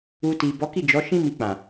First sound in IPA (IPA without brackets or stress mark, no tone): u